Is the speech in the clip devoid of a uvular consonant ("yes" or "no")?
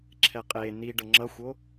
no